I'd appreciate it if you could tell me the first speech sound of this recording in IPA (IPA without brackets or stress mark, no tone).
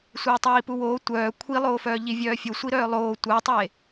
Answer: sʷ